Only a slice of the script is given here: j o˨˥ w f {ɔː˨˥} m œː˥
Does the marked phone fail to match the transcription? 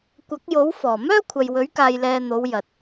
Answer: yes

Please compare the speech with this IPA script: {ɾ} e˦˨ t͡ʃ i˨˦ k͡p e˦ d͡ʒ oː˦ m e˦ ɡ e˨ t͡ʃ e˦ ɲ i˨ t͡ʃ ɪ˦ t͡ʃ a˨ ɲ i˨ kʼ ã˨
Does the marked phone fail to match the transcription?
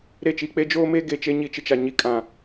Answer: no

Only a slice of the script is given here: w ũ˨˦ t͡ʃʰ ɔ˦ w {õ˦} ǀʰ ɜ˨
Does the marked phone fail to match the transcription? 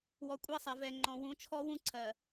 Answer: yes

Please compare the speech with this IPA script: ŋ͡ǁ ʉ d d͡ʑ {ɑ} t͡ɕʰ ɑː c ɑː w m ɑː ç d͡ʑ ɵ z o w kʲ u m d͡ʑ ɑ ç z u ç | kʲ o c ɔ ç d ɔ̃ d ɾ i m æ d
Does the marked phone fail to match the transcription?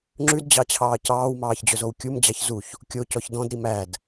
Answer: no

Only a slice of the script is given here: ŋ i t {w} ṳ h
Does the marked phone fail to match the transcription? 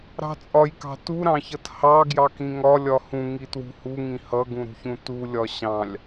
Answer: no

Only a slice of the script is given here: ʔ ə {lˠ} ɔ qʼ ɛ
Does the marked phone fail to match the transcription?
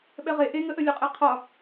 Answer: yes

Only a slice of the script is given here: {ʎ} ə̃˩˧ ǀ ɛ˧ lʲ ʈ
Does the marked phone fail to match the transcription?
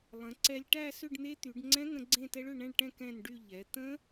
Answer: yes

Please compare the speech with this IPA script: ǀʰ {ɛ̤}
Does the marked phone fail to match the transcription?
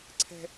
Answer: no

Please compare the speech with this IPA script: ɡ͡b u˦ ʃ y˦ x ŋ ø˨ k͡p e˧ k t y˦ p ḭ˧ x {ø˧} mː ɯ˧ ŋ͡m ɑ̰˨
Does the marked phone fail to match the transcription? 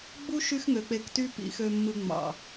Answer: no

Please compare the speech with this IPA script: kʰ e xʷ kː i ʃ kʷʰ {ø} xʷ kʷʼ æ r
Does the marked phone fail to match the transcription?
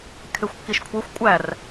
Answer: yes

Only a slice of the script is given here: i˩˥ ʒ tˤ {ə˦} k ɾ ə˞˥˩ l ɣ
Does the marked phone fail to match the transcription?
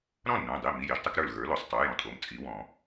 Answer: yes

